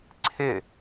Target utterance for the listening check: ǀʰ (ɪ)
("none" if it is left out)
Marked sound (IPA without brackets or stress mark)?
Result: ɪ